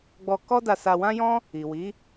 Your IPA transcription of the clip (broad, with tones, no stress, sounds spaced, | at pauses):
ɡ͡b ɔ˧ k ɔ˦ d a˧ s a˧ w ã˦ j ɔ̃˦ | i˨ w i˨˦